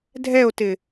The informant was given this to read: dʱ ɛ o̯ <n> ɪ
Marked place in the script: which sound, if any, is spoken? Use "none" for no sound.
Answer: t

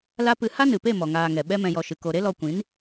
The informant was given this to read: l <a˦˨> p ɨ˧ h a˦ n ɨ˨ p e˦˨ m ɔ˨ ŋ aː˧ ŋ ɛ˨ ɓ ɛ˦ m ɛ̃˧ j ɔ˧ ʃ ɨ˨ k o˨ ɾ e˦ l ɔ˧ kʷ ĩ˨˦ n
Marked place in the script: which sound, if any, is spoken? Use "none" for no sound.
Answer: a˦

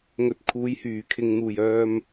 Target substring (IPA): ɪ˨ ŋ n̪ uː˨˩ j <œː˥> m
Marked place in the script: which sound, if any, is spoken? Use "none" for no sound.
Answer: œː˧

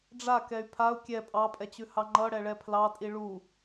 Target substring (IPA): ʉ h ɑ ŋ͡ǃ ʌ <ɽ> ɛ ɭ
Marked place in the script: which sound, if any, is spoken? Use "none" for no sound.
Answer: ɽ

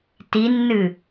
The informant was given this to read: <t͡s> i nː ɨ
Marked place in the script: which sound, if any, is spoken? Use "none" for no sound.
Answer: t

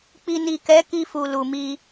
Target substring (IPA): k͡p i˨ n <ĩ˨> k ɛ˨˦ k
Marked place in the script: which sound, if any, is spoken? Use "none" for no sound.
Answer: i˨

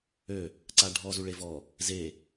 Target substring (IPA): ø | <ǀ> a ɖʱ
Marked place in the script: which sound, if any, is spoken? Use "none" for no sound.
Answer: ǀ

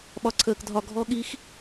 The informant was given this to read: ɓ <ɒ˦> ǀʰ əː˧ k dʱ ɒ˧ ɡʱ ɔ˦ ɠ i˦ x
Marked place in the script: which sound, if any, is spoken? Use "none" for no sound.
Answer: ɒ˧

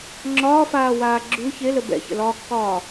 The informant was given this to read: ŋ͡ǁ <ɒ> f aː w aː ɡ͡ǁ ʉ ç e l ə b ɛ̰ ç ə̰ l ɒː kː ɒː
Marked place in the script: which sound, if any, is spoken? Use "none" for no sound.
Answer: ɒː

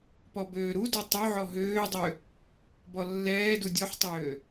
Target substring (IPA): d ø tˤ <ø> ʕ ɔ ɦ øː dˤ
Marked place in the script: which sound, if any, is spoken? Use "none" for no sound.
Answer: ø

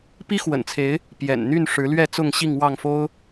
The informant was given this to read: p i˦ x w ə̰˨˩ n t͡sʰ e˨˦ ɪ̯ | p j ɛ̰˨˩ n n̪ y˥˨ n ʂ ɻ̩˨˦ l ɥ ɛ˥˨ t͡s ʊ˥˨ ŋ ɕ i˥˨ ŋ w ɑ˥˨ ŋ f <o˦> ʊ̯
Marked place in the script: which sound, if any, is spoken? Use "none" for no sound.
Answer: o˦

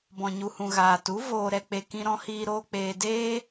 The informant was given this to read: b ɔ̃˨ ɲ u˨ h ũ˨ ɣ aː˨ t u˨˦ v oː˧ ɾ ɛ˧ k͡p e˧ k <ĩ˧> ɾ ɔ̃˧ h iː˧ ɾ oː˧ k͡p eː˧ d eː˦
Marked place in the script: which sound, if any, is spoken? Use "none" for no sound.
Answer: ĩ˧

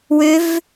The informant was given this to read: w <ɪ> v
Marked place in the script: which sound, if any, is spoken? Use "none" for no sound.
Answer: ʏ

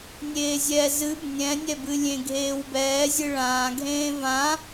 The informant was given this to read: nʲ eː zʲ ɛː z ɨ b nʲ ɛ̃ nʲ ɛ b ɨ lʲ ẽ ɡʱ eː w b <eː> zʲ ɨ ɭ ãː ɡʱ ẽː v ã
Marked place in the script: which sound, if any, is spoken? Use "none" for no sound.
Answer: ɛː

